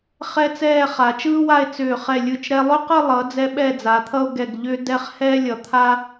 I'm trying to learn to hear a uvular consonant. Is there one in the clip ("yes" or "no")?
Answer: yes